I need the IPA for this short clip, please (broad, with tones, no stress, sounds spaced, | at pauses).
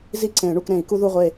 z i˦˨ ǀ ẽ˨˩˦ ɳ u˦˨ k ɾ ẽ˨˩˦ i̯ k u˦ ð u˦˨ ʁʷ e˦˨